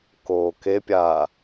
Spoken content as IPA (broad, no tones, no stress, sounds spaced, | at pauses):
k oː k e pʲ a